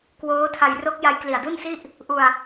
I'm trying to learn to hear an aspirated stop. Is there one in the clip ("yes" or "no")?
yes